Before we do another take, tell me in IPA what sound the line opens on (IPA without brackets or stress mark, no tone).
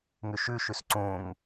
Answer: ŋ